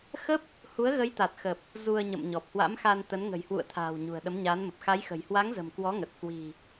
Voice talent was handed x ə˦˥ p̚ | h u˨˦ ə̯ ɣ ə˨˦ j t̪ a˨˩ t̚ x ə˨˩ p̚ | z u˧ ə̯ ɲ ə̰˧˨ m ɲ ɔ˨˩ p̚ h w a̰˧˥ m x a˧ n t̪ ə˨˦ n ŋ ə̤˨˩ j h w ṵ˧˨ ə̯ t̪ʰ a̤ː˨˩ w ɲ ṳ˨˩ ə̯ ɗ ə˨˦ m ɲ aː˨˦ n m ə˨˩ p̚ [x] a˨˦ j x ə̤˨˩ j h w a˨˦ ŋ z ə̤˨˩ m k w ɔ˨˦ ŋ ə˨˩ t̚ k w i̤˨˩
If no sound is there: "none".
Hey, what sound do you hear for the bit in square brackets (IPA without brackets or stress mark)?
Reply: x